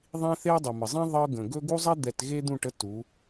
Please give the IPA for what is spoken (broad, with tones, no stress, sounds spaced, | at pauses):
ðˤ ĩ˦ θ e˦ ə̯ dˤ ə˨ m ə˨ zˤ ĩ˦ ðˤ ɤ˦ ɡ ə̃˨ ɡ ɵ˦ ɡ u˦ zˤ ɛ˦ d̪ ɛ˨ t ɣ e˦ d̪ ũ˦˨ ʈ ə˦ t u˨˦